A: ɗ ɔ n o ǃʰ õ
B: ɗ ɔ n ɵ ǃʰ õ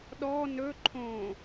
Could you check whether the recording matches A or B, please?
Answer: B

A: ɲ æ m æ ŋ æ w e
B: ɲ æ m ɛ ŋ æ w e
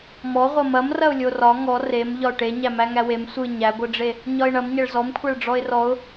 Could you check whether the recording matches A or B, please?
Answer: A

